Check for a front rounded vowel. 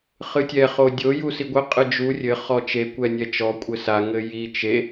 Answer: absent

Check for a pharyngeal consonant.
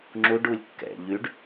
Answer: absent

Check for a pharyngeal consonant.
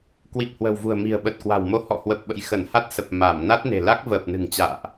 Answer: absent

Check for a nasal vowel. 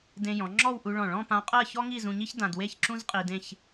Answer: present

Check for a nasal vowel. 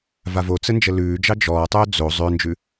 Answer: absent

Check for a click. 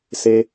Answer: absent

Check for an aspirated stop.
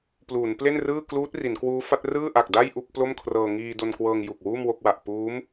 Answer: present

